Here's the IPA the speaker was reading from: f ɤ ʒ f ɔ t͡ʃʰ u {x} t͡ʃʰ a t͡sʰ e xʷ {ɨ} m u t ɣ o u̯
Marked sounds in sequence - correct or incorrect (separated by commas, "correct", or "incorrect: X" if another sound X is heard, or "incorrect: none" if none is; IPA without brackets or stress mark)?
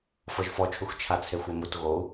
correct, incorrect: e